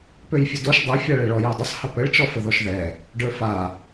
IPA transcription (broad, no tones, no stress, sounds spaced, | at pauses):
p ø j fʲ ə d o ʃ dˤ a fʲ a ɭ ɛ ɭ ɔ j ø dˤ ɪ sˤ h ə p ə ɭ t͡ʃ ɔ f ə ð ɔ ʃ ð ɛ | ɖ ə˞ f a